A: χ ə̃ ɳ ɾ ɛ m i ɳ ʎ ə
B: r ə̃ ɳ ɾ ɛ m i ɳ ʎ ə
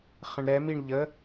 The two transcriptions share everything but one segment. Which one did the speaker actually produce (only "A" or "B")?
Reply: A